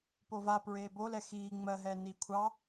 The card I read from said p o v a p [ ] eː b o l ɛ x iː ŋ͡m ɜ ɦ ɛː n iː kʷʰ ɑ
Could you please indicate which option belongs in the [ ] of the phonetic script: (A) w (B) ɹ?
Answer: B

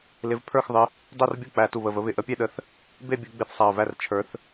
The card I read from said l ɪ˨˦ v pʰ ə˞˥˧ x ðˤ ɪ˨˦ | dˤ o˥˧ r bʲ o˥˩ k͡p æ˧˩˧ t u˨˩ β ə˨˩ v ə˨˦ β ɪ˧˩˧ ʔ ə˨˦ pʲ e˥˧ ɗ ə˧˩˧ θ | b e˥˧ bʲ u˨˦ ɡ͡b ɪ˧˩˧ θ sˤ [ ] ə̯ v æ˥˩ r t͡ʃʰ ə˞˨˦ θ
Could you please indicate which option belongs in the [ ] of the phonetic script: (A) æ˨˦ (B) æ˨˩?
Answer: B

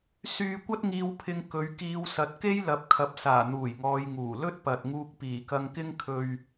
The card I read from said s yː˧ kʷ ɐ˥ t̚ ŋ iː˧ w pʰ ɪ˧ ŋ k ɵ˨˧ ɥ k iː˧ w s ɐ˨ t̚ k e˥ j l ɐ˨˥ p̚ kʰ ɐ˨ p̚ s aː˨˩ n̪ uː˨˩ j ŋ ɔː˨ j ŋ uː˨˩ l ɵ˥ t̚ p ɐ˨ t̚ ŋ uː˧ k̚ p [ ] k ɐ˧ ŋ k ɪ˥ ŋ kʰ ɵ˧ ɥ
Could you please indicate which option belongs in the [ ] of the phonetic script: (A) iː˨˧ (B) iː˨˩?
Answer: B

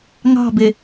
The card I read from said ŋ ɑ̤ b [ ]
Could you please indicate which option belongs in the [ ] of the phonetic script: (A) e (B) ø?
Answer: A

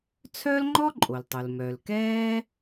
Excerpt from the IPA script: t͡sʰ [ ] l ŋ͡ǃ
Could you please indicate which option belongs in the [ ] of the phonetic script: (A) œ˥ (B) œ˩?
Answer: A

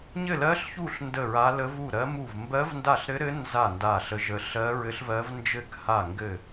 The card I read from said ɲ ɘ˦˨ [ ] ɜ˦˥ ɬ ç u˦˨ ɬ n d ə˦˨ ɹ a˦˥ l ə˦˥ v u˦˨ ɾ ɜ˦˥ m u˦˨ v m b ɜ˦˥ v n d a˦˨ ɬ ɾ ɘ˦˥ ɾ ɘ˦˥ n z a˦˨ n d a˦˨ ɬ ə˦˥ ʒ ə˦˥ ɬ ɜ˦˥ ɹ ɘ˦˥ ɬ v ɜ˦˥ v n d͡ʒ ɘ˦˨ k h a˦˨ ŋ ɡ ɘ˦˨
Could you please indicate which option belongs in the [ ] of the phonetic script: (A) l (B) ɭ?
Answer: A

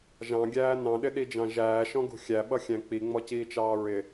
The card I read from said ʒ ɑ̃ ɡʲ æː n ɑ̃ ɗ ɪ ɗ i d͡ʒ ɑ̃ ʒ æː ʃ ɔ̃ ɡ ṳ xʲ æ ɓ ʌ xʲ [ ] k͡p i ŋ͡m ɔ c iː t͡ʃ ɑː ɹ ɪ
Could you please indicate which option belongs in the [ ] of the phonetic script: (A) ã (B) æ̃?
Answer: B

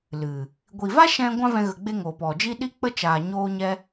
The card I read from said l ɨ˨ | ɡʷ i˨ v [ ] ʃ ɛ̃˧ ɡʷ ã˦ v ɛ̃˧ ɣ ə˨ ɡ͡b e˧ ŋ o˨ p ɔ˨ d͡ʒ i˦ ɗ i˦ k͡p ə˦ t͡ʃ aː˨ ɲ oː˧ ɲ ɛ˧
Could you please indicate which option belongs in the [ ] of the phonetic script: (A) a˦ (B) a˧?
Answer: A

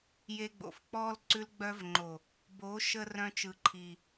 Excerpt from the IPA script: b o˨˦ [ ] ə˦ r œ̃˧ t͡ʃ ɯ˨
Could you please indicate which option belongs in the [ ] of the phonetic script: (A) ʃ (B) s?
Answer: A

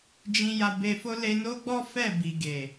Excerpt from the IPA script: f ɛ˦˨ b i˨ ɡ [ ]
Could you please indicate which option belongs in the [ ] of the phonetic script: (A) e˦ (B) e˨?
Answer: B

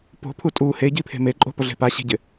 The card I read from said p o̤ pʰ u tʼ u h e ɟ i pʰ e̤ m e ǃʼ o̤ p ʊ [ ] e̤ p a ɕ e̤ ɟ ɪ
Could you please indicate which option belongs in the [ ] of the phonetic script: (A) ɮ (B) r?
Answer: A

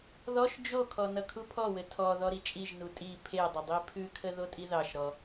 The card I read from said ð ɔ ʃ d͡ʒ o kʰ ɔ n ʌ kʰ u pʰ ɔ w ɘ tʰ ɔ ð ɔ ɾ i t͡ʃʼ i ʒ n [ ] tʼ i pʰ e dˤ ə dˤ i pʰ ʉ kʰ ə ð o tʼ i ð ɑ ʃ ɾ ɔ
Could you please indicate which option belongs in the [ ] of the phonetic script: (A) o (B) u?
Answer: B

